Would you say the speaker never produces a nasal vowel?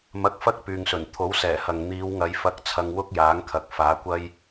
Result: yes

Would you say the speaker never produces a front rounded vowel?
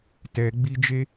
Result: yes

